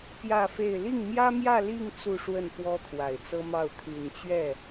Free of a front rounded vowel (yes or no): no